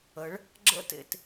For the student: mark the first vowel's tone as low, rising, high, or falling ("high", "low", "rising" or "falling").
rising